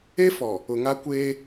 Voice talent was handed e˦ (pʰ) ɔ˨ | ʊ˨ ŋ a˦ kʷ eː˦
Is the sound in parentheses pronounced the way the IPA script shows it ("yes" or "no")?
no